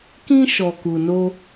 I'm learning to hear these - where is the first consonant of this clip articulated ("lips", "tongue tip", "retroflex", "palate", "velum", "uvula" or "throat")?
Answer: velum